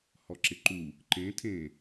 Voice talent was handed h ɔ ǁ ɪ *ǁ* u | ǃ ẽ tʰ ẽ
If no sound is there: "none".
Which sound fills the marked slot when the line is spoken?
ǃ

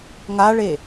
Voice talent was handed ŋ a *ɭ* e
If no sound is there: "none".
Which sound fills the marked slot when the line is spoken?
ɭ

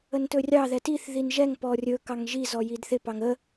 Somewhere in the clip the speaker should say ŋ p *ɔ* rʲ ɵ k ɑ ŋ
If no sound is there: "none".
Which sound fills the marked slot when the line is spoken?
ɔ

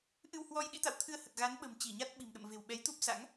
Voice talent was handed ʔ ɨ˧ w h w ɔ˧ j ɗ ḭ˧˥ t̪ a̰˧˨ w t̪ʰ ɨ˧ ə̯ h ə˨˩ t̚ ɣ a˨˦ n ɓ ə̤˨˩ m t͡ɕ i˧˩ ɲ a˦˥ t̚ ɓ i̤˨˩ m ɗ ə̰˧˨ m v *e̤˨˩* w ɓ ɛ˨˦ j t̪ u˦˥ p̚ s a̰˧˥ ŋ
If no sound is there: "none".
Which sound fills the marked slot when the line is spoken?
e̤˨˩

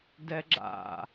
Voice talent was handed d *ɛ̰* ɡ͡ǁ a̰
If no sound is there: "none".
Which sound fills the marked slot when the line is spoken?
ɛ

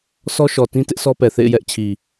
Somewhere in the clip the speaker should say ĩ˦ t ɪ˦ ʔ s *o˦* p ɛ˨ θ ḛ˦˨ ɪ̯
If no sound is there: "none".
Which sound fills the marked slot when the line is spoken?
ɔ˦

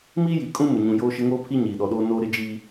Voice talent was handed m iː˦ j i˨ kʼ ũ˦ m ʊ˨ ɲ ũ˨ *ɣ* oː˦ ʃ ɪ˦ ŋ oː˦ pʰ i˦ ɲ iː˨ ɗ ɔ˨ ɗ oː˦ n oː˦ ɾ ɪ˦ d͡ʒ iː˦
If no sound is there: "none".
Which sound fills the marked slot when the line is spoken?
j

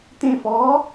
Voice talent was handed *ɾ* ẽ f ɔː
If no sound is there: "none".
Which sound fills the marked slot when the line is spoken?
t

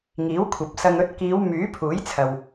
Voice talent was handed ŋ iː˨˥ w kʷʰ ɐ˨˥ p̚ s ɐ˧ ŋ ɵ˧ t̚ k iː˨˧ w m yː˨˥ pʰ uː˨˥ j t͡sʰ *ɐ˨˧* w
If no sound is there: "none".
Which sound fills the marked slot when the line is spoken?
ɐ˨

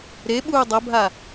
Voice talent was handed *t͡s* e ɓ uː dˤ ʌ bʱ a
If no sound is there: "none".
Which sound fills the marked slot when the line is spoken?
ɾ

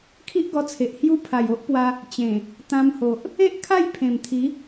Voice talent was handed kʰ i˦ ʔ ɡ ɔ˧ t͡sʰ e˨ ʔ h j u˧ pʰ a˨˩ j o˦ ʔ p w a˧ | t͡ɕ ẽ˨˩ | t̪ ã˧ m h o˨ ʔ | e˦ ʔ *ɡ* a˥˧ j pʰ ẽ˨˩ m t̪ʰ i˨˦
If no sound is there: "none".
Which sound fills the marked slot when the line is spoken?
kʰ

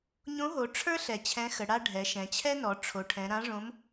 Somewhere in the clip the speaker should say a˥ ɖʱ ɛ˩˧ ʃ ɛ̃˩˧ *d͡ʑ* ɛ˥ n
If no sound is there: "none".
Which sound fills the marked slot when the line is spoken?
t͡ɕʰ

